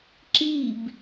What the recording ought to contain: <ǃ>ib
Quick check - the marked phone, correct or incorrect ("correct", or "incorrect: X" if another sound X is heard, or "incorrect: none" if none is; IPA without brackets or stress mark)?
incorrect: ǁ